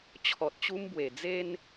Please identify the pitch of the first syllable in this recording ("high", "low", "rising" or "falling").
low